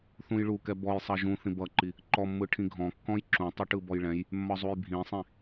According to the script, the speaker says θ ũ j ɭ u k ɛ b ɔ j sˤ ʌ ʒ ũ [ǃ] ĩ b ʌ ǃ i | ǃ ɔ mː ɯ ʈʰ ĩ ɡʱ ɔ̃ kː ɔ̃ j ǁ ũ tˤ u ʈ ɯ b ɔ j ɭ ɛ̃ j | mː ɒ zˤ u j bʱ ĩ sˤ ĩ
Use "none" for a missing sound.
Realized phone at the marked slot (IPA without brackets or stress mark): θ